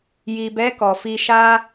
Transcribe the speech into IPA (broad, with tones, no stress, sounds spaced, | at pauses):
j i˨ b ɛ˨˦ k ɔ˧ f i˧ ʃ a˦